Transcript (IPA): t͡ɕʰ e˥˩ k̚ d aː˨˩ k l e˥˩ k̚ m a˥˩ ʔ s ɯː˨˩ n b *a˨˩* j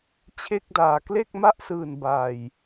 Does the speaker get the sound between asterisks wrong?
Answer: no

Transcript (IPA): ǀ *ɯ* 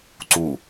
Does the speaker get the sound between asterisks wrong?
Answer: yes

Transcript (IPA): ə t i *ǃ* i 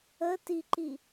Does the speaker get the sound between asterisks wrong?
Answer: no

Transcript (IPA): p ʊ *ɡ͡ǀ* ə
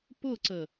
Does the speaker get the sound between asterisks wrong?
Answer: yes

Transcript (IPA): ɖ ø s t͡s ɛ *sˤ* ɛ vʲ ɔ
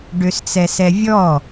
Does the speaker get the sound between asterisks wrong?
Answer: yes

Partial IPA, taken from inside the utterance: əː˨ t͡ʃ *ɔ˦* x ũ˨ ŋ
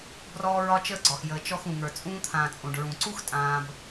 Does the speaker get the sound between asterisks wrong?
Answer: yes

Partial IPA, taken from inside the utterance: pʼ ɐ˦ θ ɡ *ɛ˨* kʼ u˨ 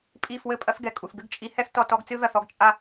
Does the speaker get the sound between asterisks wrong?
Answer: no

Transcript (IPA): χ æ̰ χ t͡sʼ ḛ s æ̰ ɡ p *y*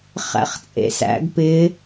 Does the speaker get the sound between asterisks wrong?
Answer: yes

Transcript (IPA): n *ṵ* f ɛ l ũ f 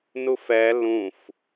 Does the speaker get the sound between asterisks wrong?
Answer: yes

